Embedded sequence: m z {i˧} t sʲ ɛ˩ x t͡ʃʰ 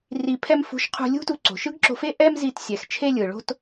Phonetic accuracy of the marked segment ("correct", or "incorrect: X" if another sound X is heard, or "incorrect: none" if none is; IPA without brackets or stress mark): correct